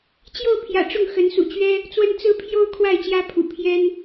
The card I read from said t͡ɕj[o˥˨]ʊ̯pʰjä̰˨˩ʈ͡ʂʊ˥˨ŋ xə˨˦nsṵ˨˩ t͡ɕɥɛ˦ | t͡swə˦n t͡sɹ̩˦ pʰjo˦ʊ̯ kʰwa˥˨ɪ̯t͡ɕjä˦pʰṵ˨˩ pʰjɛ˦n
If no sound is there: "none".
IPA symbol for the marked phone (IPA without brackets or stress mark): o˥˨